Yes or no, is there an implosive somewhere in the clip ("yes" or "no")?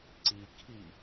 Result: no